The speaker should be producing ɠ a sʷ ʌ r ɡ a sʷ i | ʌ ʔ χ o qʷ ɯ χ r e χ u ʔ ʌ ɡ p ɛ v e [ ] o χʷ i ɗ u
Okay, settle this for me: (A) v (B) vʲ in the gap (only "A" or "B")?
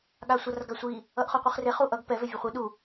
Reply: B